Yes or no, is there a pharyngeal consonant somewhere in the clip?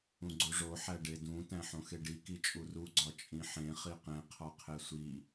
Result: yes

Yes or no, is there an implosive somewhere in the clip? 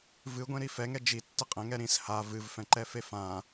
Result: no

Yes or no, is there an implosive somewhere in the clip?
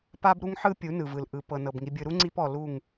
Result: no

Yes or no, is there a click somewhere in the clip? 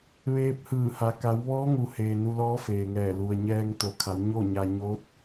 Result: no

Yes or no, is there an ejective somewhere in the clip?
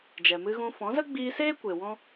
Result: no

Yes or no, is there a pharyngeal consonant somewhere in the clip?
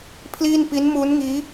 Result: no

